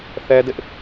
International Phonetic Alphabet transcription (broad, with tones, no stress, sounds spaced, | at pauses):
θ ɛ˦ d ɪ˦ ʔ